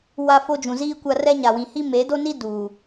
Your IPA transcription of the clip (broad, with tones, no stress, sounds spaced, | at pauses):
w a˦ f o˦ d͡ʒ ũ˨ z iː˦ kʷ a˦ r ɛ˦ ɲ a˨ w ĩ˨ h i˦ m e˨˦ d o˦ n i˦ d uː˨